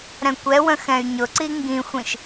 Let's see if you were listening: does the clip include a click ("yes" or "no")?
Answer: yes